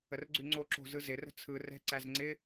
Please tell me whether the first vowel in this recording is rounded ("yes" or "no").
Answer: no